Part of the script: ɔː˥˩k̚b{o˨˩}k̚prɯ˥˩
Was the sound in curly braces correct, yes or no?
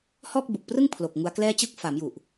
no